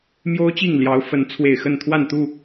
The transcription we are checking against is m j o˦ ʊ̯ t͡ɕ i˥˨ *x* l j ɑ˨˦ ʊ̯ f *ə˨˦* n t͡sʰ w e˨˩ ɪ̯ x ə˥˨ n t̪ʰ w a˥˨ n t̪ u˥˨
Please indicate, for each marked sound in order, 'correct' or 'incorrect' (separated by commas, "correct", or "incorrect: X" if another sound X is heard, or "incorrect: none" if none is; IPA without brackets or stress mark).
incorrect: ŋ, correct